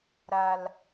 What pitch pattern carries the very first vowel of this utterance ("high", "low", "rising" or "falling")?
low